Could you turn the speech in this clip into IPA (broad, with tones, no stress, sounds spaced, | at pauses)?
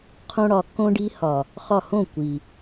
qʰ õ˦ ɽ ɒ˧ kː õ˦ ɖ i˧ h ɒ˨ | χ ɒ˦˨ h õ˦˨ kʷ i˨